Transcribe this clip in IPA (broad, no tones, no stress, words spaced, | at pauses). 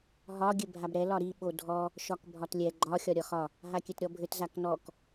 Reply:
ɦɒ ɡʲɘbʱabɾɛ lɒɾi ɓodʱɔ | ʃɒkbʱɒtlʲɛ ɡ͡ǃɒ xʲɒɾʲɒxɒ | ɦakʲɘtɾʲɔbʱɘt zaknɔk